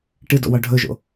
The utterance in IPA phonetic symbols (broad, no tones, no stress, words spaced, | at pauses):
ʈɨdo̰ wɒɖʱɵʒo̰